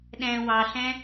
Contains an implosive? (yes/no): yes